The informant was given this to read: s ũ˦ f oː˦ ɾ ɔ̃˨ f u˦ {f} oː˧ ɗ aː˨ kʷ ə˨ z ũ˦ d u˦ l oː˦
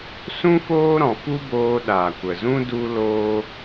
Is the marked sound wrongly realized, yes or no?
yes